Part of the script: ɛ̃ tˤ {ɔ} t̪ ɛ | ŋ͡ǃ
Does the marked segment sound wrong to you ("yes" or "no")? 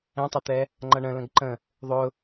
yes